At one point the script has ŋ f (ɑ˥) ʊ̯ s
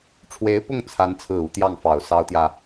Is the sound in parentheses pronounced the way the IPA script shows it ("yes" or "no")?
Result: no